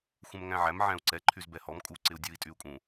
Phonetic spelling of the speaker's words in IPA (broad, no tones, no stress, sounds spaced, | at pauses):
xʷ ɛ̃ m ŋ æ̃ ʕ æ m ʕ æ̃ u̯ ǀ ɛ ǃʰ y z b ɛ h ɔ m kʼ u ǀ ɪ u̯ dʲ u i̯ tʼ y u̯ kʼ ũ